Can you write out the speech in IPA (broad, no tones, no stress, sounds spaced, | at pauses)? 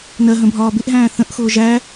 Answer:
n ɜ ɦ ə̃ bʱ ɒː b ɪ ʔ ɦ æ̃ː θ ə̃ ʔ x ʊː ʒ æ